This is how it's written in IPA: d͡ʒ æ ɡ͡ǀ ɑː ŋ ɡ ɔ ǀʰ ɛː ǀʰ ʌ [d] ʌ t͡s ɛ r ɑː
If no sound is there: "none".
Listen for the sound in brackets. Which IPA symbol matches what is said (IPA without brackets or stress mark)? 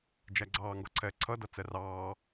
d